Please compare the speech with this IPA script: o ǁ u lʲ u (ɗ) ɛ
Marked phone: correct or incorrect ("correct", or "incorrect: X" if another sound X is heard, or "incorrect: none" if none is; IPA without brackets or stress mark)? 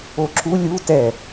incorrect: t